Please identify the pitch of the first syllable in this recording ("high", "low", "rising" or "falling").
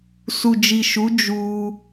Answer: low